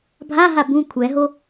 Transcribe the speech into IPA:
bʱ a ɦ a b ũ kʷʰ ɛ ɦ o

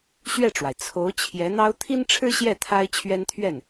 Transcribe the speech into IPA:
ɕ ɥ ɛ˥˩ ʈ͡ʂ w a˩ ɪ̯ t͡sʰ o˧˥ ʊ̯ t͡ɕʰ j ɛ˧˥ n̪ ɑ˥ ʊ̯ t̪ʰ i˥ n ʈ͡ʂʰ ɻ̩˥ ɕ j ɛ˥˩ t̪ʰ a˥ ɪ̯ t͡ɕʰ ɥ ɛ˥ n t̪ʰ ɥ ɛ˥˩ n

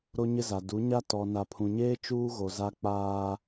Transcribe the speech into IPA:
ɾ o˦ ɲ ɪ˦ z a˨ d u˨˦ ɲ a˦ t ɔ˨ n a˨ pʰ ũ˨ ɲ eː˦ t͡ʃ uː˦ ɣ o˨ z a˦ k͡p aː˦

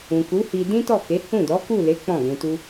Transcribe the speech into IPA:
ũ˨ k u˨˦ h i˧ d ĩ˦ t ɔ˦˨ k e˨˦ h ũ˦˨ d ɔ˨˦ k u˦˨ l e˨˦ k͡p ɔ̃˦˨ ɡ ũ˧ t u˦

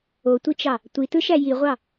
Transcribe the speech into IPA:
o tʷ i t͡ʃ ɑ | tʷ i t ɯ ʃ æ j i ʁʷ ɑ

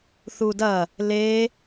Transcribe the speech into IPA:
θ u d ɐ | l e

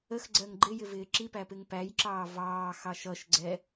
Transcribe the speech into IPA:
ə x ɡ͡ǀ ɜ ŋ ɡ͡ǃ ɪ j ɪ v ɪː ǁ i p æ p ɪ ŋ p æ j ǁ ɑː v ɑː x ɑ ʃ ʌ ʃ ɡ͡ǀ ɛ

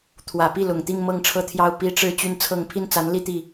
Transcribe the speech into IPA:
t̪ʰ w ä˨˩ p i˥˩ l ʊ˨˩ ŋ t̪ i˥˧ ŋ m ɤ˥˧ ŋ ʈ͡ʂʰ ɤ˥˧ t̪ʰ j ɑ˥˩ ʊ̯ p i˥ ʈ͡ʂ ɻ̩˥˧ t͡ɕ y˥˧ n t͡sʰ ɤ˥˧ ŋ pʰ i˥˩ n t͡s a˧˥ n l i˥˧ t̪ i˥˩

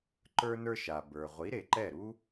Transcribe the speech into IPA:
ǃ ə˞˥ n ə˞˥ ʃ a˩ b ə˞˩ ʁʷ i˩˥ ɾ e˩ ǃ ɛ˥˩ ɾ u˥

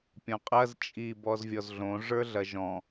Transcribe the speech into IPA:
pʲ ɔ̃ qʼ ɐ z t͡ʃʼ i b ɔ z vʲ ɔ z ɮ õ ʐ ə˞ ɮ ɐ ʒ ɔ̃

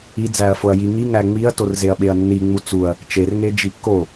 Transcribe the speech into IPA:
i d͡z æ ɐ̯ f o ɐ̯ j i ŋ i ŋ æ ŋ͡m i ɐ̯ t o r z e ɐ̯ ɓ e ɐ̯ nː i ŋ͡m u t͡s u ɐ̯ | t͡ʃ e r ŋ e d͡ʒ i kː o

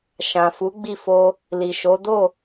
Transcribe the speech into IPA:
ʃ ã˨ f u˨˦ ɡ͡b i˦˨ f o˧ | l i˨ ʃ o˨˦ d o˦˨

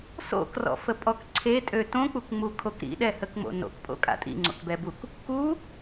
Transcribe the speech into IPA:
s o̰ k r ɔ̰ f ə pʼ ɔ k ǀʰ e tʼ ø t õ k͡p u k ŋ͡m u kʰ o k ɾ ḭ ɗ ɛ h ə k ŋ͡m o̰ n o̰ k pʼ o̰ kʼ a̰ tʼ ḭ ŋ͡ǀ o̰ k b ɛ b u k | k u

